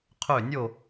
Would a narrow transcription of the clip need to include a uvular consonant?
yes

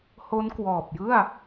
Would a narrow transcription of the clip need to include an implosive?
no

